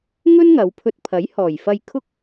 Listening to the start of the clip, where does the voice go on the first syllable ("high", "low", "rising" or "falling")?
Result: high